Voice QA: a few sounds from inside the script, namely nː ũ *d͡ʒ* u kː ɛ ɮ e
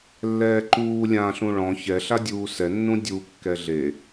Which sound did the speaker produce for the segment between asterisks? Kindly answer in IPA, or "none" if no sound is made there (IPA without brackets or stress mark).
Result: dʲ